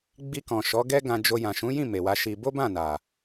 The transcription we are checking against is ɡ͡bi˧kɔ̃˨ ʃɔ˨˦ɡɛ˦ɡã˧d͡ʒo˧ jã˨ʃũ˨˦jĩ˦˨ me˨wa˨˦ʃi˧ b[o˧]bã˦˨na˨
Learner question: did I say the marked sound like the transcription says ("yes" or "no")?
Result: no